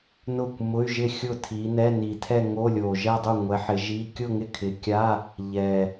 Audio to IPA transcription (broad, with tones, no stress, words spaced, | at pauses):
nʊ˥˩kʷmʊ˧˥˧y̯ʒɪ˥˩ xʲʊ˥˩tʰi˨˦nɛ˧˥˧ ni˨˩tʰɛ˥˧ ŋo˧˥˧lʲo˨˩ʒɛ˥˧dˤu˥˩ ŋʷɛ˨˦ħɪ˨˦ʒi˧˥˧ kʲʊ˥˧ŋɪ˥˩kʰɪ˨˦kʲa˧˥˧ | ʎɛ˨˩